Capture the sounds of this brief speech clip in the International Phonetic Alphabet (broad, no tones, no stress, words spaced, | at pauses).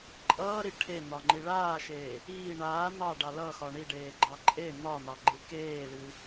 ǃʼʌːɾi ʈʰen̪ɒŋ͡ǃi ɭaːʃeː | iː ɳaː n̪ɑɖɑ lʌxɒ ɳiɖeːɡ͡ǃɑ ǃʼe n̪ɒn̪ɑɡ͡ǃɨ keːlɨ